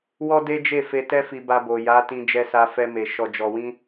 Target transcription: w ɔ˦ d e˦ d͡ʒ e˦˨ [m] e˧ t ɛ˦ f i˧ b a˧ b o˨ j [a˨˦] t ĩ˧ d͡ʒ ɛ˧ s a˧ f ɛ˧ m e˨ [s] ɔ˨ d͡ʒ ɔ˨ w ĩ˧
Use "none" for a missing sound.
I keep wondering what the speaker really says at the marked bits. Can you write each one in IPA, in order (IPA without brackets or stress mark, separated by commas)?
f, a˨˦, ʃ